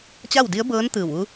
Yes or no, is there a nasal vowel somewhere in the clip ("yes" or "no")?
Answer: no